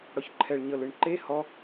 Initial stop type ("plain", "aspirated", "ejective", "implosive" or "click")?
click